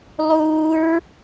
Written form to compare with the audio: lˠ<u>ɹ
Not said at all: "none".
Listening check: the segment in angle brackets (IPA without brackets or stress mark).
u